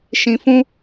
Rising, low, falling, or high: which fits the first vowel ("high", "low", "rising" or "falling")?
low